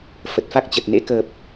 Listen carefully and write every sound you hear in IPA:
f ə˨˩ t̚ f a˦˥ k̚ t͡ɕ ə˨˩ t̚ n ḛ˧˥ k əː˨˩ p̚

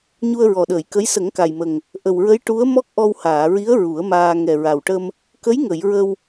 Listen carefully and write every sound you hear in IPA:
ɲ u˧ ə̯ ɹ ɔ˨˩ ɗ əː˨˩˨ j k ə˧˥ j s ə˨˩˦ ŋ k a˨˩ j m ə˨˩ ŋ | ʔ ə˨˩ w ɹ ə˧˥ j ʈ u˧˥ ə̯ m ɔ˦˥ k̚ ʔ ɔ˧ w h aː˨˩˨ ɹ i˧˥ ə̯ ɹ u˨˩˦ ə̯ m aː˧ ŋ ɛ˨˩ ɹ a˨˩ w ʈ ə˧ m | k ə˧˥ j ŋ ə˨˩˨ j ɹ ə˧ w

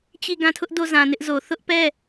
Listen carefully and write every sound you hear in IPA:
t͡ɕ i˦˨ ɡ ã˦˨ tʰ ʊ˦ ʔ d o˦˨ z ã˨ n ɪ˦ ʔ z o˨ θ ʊ˦ ʔ p ɛ˦˨

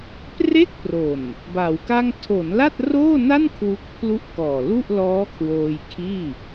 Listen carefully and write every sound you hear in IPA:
p r e˥˩ k̚ p r o˨˩ n | b a˩˦ w k a˥˩ ŋ tʰ o˩˦ n l a˥˩ t̚ r oː˥˩ n a˥˩ n kʰ w u˦˥ k̚ pʰ l u˥˩ ʔ k ɔː˨˩ l u˥˩ ʔ l ɔː˦˥ kʰ w oː˧ j kʰ iː˥˩

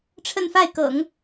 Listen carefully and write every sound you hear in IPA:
ʈ͡ʂʰ ə˥˧ n f a˥˩ ɪ̯ k ɤ̰˨˩˦ ŋ

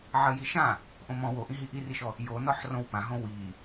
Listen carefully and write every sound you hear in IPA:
ʕ ɜ j i ʃ ã | ʔ õ m ɔ̃ w o ʔ ĩ ɦ i ʔ i r i ʃ ɔ | j o n ɔ ħ r õ w p ã ɦ õ w i

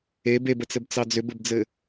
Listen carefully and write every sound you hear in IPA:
e b e b ə t͡s ɘ b t͡s ɑ d͡z ʏ b ɘ b d͡z ɘ

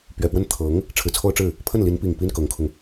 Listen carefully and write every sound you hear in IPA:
p ɥ ɛ˨˩ p w ə˥˩ n t̪ʰ ɤ˧˥ ŋ | ʈ͡ʂʰ ɻ̩˨˩ t͡sʰ o˥ ʊ̯ ʈ͡ʂ ɻ̩˥˩ | pʰ ə˥˩ n l i˧˥ n p i˨˩ ŋ p i˥ n k ɤ˧˥ ŋ kʰ ʊ˧ ŋ

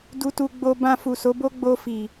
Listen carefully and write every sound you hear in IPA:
d u˧ t u˧ ɡ͡b o˧ b ã˧ f u˨ s o˨˦ b o˦ ɡ͡b o˧ f i˨

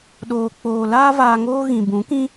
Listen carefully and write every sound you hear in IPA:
ɗ oː˨ k͡p oː˨ l aː˦ v aː˧ ŋ oː˦ ɣ ĩ˨ b ũ˨˦ k ĩ˦

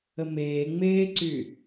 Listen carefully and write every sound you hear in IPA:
ə m eː ŋ͡m eː ǀ y

